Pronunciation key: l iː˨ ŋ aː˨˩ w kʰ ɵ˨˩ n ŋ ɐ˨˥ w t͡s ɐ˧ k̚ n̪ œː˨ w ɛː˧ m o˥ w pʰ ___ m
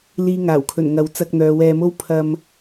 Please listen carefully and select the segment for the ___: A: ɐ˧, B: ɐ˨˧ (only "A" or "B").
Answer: A